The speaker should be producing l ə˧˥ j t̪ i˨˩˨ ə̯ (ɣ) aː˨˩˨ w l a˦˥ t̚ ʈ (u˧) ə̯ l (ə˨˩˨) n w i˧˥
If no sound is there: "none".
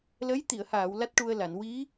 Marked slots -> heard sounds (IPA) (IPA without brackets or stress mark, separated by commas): h, u˧, a˨˩˨